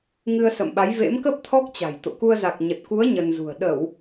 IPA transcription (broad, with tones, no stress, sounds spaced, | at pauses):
ŋ ɨ˧ ə̯ s ə̰˧˨ m ɓ a˨˦ j v ḛ˧˥ m k ə˦˥ p̚ t̪ʰ ɔ˦˥ k̚ t͡ɕ a̤˨˩ j t̪ o̰˧˨ k u˧ ə̯ z a˨˩ k̚ ɲ ə˨˩ t̚ k u˨˦ ə̯ ɲ ə˧ n z ṳ˨˩ ə̯ ɗ ə˧˩˨ w